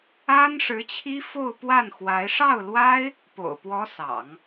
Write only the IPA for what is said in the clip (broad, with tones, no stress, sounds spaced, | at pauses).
a˥ n ʂ ɻ̩˧˥ t͡ɕʰ i˥ f o˥˧ ʊ̯ p w a˥˩ n x w a˧˥ ɪ̯ ʂ ɑ˥˩ ʊ̯ l w a˥ ɪ̯ | p o̰˨˩ ʊ̯ p w ɔ˧˥ s ɑ̰˨˩˦ ŋ